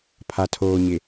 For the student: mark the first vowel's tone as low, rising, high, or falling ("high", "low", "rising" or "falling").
low